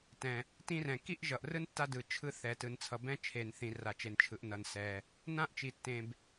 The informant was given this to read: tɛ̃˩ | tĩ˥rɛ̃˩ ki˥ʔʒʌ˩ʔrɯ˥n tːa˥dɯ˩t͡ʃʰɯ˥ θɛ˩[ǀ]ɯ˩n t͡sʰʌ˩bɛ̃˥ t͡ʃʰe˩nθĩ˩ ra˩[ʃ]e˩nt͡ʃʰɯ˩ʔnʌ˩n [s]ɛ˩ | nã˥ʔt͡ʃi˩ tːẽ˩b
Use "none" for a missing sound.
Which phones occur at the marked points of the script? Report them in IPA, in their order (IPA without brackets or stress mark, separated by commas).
t, t͡ʃ, s